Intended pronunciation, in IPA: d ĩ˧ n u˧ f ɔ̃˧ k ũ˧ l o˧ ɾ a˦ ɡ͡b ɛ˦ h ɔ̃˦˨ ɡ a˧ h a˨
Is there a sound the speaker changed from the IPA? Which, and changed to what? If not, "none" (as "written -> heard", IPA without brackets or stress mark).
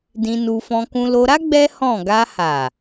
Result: none